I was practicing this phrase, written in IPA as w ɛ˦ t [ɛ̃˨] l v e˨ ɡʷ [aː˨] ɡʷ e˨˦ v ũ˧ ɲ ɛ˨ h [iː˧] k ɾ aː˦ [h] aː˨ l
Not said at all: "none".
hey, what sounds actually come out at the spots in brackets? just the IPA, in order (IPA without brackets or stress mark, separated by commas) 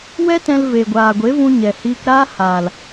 ɛ̃˧, aː˨, iː˧, h